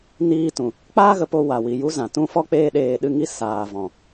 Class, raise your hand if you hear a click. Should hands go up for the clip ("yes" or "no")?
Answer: no